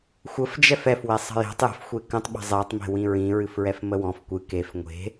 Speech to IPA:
xʷ ə f d͡ʒ ɛ f ɛ f w e sˤ ə̤ j e̤ tˤ j ə̤ f xʷ e k ə̃ tˤ ɓ ə̤ zˤ e tˤ m e̤ w ĩ ɹ ĩ ɹ ɨ f ɹ ɛ f m ə w ɔ̃ f kʷ ɨ k e f ŋʷ e̤

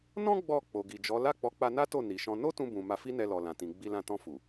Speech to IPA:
n ɔ̃˦ ɡ͡b ɔ˦˨ k͡p o˨ ɡ i˨ d͡ʒ ɔ˨˦ l a˦˨ k͡p ɔ˨˦ k͡p a˧ n a˦ t o˦˨ n i˨ ʃ ɔ̃˧ n o˦ t ũ˧ b ũ˨ m a˧ f i˦ n ɛ˧ l ɔ˨ l ã˨ t ĩ˨ ɡ͡b i˧ l ã˧ t ɔ̃˧ f u˨

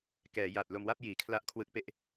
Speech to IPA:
k ɛː˩˦ j a˨˩ t̚ l o˧ m w a˥˩ p̚ j iː˩˦ kʰ l a˦˥ ʔ kʰ w ɯ˦˥ k̚ p e˦˥ ʔ

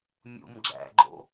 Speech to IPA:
mʲ ṵ m ɡ͡ǁ æ̰ ɡ͡ǃ o̰

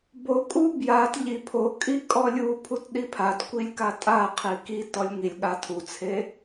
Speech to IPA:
b o kʼ u b j a t ʎ i pʰ o kʼ i kʼ ɔ lʲ u pʰ u t ɗ i pʰ a t kʷ i lʲ k a tʼ a qʰ i k i t ɔ lʲ ŋ i lʲ ɠ a tʰ u t͡sʰ e

